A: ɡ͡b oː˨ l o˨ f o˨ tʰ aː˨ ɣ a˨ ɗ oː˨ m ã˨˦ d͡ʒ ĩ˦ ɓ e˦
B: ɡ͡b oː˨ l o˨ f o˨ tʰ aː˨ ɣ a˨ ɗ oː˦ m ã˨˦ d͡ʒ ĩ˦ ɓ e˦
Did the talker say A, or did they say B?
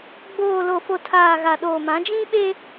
A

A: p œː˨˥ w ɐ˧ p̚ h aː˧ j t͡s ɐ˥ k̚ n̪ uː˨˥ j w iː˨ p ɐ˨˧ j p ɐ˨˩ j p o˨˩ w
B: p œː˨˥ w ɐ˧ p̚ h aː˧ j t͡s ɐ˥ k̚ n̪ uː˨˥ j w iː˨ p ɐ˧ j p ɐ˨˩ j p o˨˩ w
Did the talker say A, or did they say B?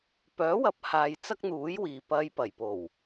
B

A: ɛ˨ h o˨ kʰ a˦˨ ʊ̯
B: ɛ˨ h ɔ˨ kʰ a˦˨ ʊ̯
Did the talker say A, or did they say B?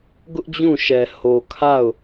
A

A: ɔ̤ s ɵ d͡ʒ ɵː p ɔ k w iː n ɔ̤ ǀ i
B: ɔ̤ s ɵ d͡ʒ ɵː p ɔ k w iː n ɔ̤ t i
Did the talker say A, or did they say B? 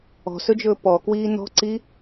A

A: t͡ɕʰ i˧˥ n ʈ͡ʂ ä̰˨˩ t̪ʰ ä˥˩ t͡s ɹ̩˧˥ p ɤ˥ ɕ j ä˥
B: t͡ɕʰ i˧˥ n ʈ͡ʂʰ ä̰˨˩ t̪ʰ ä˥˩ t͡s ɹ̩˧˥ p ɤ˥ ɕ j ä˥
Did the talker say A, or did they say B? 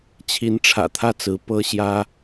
B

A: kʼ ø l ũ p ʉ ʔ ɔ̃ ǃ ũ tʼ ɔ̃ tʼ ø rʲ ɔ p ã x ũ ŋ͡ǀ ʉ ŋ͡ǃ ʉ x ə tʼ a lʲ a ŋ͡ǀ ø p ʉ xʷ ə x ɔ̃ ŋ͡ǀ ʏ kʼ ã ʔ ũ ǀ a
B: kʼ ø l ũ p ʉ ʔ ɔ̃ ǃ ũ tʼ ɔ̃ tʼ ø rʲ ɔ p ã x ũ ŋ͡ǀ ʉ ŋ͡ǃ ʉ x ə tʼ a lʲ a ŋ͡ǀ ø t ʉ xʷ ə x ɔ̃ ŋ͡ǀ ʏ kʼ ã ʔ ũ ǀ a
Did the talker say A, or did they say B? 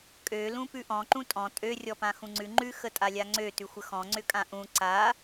B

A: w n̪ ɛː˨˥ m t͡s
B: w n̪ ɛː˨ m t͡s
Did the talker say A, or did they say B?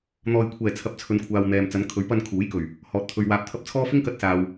B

